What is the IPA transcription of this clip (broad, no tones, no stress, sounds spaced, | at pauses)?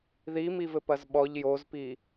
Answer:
ð i m i v ɘ p ɐ z ɓ ɔ ʎ j o z p i